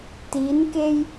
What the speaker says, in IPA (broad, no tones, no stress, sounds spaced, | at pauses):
t i n k e j